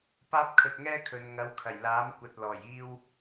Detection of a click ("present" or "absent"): absent